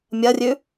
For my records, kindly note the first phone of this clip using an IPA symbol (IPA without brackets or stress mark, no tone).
mʲ